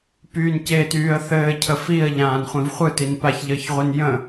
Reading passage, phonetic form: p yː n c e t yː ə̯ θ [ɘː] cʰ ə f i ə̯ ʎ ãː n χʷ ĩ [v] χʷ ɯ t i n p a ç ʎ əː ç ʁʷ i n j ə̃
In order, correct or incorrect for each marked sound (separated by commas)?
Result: correct, correct